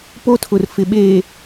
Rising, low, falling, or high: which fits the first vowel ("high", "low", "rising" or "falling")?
high